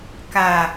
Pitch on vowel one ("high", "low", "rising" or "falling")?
low